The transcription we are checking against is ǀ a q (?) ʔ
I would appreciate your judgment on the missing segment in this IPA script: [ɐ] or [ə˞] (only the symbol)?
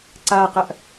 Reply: ɐ